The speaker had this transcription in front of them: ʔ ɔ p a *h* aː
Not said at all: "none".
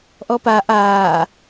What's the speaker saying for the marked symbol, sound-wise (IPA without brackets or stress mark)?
ʔ